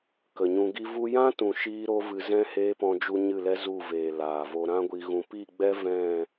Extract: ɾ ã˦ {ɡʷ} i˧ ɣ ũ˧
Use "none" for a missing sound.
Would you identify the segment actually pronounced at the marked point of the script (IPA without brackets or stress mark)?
ɡʷ